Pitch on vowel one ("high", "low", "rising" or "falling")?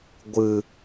low